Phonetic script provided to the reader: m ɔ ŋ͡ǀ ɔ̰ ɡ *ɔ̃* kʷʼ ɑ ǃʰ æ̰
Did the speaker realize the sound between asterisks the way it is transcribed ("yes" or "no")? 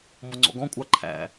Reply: yes